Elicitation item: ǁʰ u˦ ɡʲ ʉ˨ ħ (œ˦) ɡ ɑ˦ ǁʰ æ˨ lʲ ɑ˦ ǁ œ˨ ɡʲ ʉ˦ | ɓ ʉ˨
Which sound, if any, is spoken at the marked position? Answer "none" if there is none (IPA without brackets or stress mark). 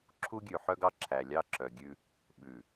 œ˦